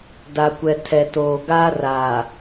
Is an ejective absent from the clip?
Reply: yes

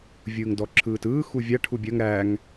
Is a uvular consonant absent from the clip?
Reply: yes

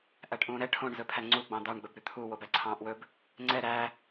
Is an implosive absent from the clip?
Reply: yes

